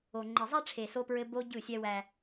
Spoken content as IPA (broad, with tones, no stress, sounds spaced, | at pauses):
o˨ ŋ͡ǃ e˨ zˤ ɛ˦ ʈ͡ʂʰ e˨ s o˦ p ɹ ɘ˦ b o˦ ɟ ɯ˦˨ sʲ ɛ˦ w æ˦